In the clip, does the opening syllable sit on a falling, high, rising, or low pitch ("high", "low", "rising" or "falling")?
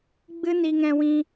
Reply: high